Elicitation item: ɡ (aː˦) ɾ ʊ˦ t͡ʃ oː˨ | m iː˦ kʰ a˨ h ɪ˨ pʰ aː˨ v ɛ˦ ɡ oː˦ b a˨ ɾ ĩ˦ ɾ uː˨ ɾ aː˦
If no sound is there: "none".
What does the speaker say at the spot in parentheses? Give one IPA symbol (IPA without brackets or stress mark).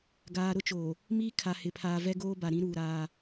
aː˨